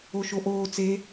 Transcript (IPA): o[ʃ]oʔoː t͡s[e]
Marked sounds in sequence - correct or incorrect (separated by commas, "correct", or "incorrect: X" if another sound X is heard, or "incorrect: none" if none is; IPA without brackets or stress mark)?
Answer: correct, correct